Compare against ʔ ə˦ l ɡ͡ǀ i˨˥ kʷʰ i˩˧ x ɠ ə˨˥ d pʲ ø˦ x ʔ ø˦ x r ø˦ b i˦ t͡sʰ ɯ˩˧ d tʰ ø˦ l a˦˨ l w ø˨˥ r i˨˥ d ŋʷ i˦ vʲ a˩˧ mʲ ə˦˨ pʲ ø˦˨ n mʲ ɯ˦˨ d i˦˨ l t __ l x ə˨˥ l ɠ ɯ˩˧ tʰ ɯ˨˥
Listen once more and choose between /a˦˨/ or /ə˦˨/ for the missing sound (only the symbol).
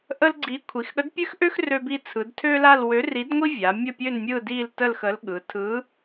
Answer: ə˦˨